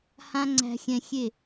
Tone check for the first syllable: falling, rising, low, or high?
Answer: high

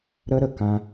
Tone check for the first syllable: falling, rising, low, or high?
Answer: high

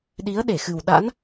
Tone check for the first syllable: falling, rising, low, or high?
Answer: rising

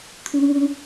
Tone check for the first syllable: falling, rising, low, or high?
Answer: high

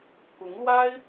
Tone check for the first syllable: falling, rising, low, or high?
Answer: rising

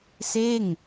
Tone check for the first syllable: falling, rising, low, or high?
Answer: falling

